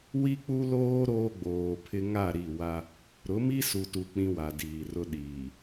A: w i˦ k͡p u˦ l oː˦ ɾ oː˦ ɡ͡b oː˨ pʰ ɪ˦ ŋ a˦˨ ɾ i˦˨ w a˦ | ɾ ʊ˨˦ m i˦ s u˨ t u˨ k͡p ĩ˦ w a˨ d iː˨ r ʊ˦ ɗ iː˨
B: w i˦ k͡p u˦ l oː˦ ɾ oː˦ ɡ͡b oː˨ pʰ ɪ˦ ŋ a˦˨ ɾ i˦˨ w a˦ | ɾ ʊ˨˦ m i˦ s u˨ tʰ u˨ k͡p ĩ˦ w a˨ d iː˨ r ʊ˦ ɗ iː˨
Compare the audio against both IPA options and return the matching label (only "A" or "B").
A